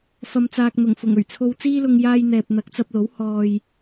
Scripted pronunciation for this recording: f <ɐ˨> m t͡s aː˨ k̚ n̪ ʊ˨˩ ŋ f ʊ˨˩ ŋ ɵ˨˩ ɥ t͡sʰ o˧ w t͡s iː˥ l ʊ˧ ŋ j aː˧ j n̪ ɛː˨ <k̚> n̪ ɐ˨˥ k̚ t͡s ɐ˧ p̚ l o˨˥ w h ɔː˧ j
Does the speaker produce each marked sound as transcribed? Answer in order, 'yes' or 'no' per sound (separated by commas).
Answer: yes, no